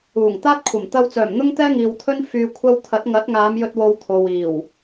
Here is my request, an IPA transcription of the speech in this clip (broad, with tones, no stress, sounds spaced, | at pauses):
uː˨˩ ŋ t̪ aː˥ t̚ kʷʰ ɐ˨˩ m t̪ ɐ˧ w t͡s œː˨˩ m n̪ ʊ˥ ŋ t̪ ɛː˥ ŋ iː˨ w t̪ʰ ɵ˥ n f yː˧ kʷʰ ɐ˥ w t̪ʰ ɐ˨˥ t̚ ŋ ɐ˨˥ t̚ ŋ aː˨˧ m j ɵ˧ t̚ w o˧ w t̪ʰ o˨ w iː˨˩ w